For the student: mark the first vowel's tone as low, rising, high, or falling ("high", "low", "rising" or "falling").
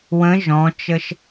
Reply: rising